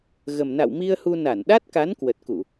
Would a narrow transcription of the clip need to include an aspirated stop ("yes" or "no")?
no